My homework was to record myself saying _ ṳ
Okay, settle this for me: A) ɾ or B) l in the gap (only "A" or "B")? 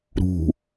A